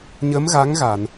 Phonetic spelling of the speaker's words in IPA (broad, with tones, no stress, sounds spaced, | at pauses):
ɲ ə˧˥ m ɣ a˧˥ ŋ ɣ a˨˩˨ n